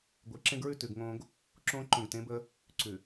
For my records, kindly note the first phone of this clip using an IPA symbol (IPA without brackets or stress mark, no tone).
ɡʷ